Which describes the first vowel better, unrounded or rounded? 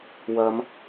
unrounded